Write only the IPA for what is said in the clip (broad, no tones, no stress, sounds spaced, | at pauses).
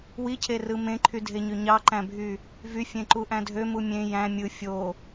w i cʰ e r ɯ m ẽ ǃʰ y dʱ e ɲ ø ɲ ɑ ǃ æ̃ bʱ y | v y fʲ ẽ ǃ u ʔ æ̃ dʱ ø m u mʲ ẽ j æ̃ mʲ ɯ fʲ o